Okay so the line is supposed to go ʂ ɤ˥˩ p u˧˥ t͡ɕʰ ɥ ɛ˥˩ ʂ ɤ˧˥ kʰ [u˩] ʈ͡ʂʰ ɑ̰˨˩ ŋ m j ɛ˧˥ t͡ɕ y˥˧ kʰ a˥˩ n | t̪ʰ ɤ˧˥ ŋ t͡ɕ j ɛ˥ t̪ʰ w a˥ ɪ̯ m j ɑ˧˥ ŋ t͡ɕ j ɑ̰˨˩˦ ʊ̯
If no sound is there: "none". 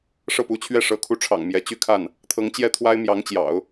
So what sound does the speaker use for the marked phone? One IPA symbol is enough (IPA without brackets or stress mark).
u˧˥